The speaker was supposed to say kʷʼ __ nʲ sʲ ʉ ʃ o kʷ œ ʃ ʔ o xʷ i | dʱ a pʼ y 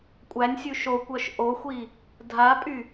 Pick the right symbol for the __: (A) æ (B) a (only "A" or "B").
A